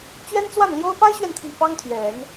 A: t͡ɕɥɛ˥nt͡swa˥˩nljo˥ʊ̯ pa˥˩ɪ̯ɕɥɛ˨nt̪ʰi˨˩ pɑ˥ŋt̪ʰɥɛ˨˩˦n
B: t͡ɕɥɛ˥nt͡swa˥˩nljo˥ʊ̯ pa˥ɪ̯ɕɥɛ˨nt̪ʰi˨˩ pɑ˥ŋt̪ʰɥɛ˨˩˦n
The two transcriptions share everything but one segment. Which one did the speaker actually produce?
B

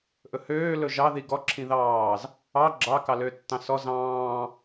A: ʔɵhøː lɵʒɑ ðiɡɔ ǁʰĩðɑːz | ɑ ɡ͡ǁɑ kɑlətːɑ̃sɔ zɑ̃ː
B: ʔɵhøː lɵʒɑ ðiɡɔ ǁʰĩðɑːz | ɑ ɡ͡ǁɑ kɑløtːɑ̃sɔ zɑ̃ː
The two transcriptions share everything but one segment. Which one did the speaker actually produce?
B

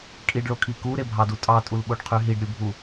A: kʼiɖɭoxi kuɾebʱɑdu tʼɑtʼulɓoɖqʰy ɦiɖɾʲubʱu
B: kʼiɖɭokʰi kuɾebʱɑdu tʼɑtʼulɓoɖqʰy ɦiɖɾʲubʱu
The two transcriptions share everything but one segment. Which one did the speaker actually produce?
B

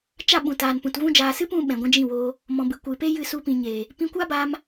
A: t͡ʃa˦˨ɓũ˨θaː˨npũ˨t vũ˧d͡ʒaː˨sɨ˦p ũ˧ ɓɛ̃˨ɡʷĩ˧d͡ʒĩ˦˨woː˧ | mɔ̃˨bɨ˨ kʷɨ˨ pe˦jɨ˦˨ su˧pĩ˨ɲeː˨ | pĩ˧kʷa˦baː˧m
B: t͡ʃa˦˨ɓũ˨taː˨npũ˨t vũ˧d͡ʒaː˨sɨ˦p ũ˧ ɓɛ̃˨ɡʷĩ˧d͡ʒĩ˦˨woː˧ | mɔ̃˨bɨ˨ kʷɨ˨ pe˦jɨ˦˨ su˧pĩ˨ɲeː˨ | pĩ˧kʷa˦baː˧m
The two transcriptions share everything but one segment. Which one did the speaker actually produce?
B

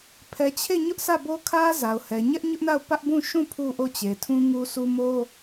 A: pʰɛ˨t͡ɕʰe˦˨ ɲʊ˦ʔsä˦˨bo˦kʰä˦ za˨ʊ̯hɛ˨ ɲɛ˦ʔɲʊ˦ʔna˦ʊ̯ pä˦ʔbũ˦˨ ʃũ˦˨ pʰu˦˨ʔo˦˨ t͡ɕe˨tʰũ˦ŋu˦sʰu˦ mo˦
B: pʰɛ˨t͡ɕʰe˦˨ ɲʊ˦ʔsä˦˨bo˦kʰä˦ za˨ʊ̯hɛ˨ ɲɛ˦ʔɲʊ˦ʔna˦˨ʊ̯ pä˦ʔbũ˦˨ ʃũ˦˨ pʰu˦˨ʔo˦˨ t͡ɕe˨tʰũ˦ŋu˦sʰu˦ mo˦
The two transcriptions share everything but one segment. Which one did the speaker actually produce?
B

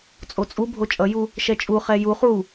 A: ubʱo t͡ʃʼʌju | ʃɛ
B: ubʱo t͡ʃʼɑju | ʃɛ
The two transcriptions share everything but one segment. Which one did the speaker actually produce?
A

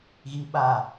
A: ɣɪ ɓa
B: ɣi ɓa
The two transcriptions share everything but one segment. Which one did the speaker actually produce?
B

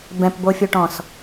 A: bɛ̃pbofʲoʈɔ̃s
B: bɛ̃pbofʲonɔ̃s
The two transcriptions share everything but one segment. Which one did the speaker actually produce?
A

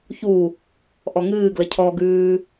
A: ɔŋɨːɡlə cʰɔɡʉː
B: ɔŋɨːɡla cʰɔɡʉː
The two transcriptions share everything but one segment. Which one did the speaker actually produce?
A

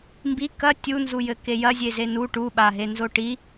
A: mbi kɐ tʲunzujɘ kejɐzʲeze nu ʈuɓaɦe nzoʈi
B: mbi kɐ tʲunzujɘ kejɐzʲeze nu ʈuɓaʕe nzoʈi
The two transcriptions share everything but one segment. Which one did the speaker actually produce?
A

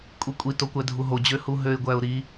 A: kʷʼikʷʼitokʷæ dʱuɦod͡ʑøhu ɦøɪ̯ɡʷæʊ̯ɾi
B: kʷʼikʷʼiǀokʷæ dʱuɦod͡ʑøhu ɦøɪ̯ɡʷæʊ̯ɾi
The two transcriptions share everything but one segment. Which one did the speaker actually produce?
A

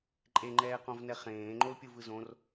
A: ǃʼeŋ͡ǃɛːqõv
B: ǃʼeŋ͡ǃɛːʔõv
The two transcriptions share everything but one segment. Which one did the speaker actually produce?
A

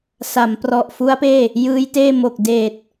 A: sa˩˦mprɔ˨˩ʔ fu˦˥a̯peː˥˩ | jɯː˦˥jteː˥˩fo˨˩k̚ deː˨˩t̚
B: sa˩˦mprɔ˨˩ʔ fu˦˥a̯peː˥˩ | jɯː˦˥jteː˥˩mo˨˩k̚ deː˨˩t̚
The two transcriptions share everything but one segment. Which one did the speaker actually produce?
B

